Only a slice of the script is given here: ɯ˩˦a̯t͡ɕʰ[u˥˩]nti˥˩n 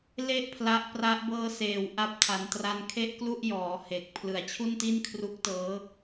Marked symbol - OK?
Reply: yes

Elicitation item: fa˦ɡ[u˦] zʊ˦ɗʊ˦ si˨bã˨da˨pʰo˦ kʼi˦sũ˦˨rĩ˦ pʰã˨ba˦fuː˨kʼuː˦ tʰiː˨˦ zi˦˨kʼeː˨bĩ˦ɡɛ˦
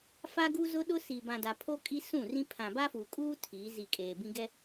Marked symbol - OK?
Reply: yes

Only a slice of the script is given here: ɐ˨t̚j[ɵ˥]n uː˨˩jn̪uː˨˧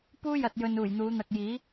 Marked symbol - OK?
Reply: no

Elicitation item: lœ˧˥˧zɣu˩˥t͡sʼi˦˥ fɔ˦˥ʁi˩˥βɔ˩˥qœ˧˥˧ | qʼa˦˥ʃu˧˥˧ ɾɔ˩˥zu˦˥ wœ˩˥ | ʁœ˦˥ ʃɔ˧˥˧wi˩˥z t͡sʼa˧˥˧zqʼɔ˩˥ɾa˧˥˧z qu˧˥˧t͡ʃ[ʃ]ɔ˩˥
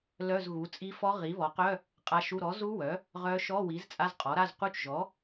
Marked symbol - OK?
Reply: no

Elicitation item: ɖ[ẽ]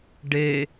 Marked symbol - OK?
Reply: no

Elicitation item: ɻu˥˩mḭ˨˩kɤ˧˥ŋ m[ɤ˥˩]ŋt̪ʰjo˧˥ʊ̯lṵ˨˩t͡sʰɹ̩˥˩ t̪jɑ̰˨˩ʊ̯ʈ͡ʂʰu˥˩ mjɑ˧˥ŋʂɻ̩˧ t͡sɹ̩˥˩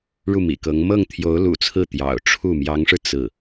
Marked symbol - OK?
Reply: yes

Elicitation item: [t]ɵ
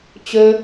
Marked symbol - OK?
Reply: no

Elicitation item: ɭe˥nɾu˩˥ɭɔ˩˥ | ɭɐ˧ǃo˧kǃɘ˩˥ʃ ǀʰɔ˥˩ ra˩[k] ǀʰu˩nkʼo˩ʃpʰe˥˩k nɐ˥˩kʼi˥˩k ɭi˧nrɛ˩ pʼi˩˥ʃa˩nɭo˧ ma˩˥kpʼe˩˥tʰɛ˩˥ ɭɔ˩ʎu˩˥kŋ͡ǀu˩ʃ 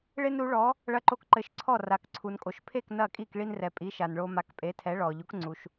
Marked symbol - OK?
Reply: yes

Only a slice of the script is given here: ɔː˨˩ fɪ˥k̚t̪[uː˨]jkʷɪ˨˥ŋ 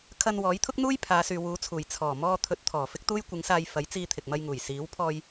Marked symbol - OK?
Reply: no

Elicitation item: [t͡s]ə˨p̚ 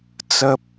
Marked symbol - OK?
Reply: yes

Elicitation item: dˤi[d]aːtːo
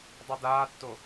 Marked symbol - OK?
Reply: yes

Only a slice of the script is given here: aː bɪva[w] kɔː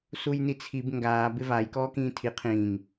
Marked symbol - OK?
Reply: no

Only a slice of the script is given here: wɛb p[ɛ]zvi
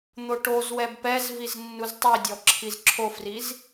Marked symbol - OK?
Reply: yes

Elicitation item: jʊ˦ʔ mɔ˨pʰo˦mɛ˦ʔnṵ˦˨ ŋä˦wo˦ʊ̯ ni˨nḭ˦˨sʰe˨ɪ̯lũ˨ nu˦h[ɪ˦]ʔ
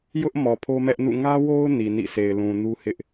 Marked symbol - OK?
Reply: yes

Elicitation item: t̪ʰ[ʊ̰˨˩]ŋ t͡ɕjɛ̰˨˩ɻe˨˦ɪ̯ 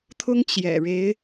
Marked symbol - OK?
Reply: no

